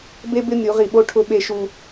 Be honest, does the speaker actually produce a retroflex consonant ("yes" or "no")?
yes